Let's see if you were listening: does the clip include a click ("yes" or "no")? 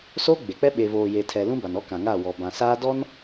no